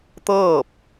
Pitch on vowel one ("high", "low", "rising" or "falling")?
falling